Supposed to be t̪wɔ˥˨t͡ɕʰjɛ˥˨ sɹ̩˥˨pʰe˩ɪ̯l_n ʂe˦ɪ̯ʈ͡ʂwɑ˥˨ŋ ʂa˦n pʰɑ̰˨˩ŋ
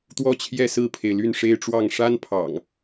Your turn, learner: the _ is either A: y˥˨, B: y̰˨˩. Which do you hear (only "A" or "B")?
A